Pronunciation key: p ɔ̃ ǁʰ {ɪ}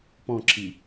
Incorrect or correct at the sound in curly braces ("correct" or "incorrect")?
incorrect